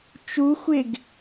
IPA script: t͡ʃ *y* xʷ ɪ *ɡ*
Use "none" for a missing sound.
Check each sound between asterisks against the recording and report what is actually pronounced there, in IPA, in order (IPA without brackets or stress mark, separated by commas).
u, ɡ